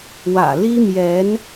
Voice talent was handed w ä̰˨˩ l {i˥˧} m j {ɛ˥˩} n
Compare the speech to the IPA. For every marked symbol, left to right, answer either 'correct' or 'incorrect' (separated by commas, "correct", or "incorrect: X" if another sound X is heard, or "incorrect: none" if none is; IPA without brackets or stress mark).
incorrect: i˥, incorrect: ɛ˧˥